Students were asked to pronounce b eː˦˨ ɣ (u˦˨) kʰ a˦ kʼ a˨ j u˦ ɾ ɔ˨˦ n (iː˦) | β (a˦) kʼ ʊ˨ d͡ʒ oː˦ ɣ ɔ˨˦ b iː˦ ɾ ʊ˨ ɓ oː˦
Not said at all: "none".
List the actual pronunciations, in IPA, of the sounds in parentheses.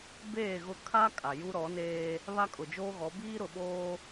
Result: ʊ˦˨, eː˦, a˦

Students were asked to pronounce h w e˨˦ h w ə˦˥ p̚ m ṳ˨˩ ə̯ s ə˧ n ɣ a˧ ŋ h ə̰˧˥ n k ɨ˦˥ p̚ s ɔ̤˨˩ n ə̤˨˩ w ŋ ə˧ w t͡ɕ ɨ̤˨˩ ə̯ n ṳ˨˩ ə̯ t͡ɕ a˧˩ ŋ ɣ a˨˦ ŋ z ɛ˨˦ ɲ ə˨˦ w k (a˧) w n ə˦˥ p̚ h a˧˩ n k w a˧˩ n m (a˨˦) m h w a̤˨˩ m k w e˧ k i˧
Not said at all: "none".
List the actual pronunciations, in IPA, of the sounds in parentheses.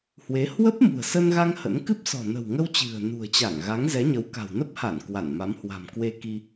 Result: a̤˨˩, a˨˦

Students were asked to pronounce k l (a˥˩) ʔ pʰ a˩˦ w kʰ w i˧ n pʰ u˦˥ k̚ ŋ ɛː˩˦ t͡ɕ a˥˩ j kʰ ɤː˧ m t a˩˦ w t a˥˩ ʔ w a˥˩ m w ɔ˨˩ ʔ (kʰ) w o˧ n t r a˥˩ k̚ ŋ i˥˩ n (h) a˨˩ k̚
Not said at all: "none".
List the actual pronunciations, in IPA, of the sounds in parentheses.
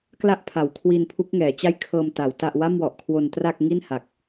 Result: a˥˩, kʰ, h

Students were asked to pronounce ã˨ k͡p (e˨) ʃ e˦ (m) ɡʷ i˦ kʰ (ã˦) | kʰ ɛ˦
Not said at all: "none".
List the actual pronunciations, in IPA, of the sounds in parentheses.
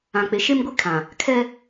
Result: e˨, m, ã˨

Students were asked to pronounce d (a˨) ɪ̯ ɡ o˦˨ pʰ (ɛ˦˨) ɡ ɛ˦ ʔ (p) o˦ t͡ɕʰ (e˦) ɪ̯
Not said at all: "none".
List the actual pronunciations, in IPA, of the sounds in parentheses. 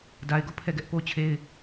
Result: a˦, ɛ˦˨, p, e˦

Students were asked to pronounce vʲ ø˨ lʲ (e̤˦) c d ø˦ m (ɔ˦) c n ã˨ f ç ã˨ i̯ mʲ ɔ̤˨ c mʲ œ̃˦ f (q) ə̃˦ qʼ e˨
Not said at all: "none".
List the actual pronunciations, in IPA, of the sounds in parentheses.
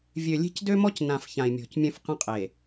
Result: e̤˦, ɔ˦, q

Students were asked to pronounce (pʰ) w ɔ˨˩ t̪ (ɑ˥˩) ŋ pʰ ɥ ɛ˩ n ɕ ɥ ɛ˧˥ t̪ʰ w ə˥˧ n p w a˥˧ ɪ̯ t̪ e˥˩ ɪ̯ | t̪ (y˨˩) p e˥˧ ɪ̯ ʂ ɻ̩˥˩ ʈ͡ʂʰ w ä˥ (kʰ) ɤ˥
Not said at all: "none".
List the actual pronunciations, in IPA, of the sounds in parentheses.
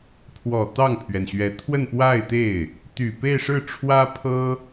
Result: pʰ, ɑ˥˩, y˨˩, pʰ

